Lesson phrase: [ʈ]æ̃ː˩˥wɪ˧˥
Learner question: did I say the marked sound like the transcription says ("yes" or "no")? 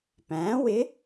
no